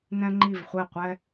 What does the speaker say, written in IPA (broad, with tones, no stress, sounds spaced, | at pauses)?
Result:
n ɛ̃˥ ŋ͡ǃ i˥˧ v χʷ ɛ˥˧ qʷ ɛ˥